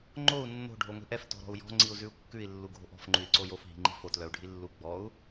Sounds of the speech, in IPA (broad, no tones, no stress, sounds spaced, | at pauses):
ŋ͡ǃ o u̯ nː o̤ ɖʱ o ŋʷ i̤ ʔ ɛ f t ɔ̤ ɾ ɔ̤ u̯ j ɔ̤ ŋ͡ǀ i u̯ z ʉ u̯ kː ʉ i̯ lː u ɡʱ o̤ ʔ ɔ̤ f ŋ͡ǃ ʉ i̯ ǀ o j o f ɦ i̤ ŋ͡ǃ i̤ f o t l œ u̯ ɖʱ i lː u ɡ͡b ɔ u̯